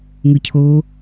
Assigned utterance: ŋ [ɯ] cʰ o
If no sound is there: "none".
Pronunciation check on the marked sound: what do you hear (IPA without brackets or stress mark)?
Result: ɯ